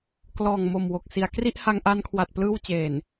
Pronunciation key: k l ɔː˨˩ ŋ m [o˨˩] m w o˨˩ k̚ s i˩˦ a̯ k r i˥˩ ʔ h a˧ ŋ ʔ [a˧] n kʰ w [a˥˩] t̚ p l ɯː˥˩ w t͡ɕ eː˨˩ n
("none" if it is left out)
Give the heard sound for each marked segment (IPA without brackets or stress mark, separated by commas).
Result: o˨˩, a˧, a˨˩